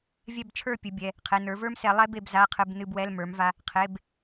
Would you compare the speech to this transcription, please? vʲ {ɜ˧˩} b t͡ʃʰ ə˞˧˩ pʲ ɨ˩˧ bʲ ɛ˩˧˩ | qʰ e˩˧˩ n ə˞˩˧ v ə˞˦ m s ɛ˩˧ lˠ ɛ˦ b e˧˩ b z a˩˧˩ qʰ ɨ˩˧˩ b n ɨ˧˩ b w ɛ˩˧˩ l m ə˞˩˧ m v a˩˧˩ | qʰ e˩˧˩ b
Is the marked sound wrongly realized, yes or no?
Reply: yes